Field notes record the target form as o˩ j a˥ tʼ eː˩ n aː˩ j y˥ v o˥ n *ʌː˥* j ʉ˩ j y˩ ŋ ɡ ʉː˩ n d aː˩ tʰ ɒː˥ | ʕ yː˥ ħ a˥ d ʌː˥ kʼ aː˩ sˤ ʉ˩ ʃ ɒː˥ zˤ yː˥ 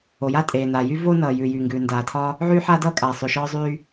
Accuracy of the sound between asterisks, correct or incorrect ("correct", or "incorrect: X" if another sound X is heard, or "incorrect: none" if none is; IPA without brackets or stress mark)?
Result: incorrect: ʌː˩